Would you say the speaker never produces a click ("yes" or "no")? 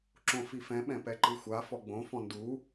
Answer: no